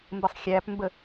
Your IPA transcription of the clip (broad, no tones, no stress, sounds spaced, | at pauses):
m b ə sˤ xʲ æ p m b ə